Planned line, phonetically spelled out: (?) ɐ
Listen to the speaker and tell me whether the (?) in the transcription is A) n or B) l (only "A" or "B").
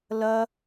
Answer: B